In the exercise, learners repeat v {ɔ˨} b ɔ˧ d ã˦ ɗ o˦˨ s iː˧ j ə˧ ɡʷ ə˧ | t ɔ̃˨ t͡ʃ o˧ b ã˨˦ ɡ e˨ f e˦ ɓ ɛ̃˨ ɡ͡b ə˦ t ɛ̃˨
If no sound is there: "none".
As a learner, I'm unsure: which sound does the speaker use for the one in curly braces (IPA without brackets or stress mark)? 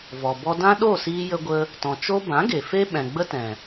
ɔ˨